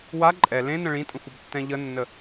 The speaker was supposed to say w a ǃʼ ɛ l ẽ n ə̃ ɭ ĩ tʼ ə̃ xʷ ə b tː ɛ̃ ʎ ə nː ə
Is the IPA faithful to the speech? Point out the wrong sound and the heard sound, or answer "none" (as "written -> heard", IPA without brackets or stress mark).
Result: none